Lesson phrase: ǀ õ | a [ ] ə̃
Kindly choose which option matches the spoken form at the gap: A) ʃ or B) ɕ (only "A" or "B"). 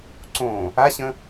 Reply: B